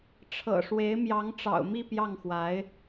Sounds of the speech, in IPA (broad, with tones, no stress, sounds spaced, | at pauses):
ʈ͡ʂʰ ɤ̰˨˩ ʂ w e˧˥ ɪ̯ m j ɑ˧˥ ŋ ʈ͡ʂ ɑ̰˨˩ ʊ̯ m i˥˧ p j ɑ˥˩ ŋ x w a˧˥ ɪ̯